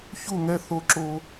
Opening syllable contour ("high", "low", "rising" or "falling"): falling